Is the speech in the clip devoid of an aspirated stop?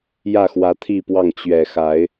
no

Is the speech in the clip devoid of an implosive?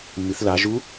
yes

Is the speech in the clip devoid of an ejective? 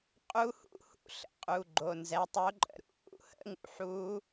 no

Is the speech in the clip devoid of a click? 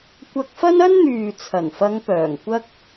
yes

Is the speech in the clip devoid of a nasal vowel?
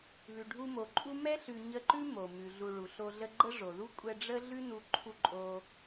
yes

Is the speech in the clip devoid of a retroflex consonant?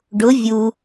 no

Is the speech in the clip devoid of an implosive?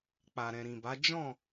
yes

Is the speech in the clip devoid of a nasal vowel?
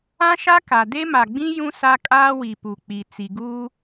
no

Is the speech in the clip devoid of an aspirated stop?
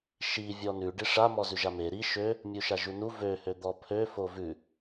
no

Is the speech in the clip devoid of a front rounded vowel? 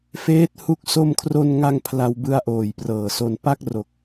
yes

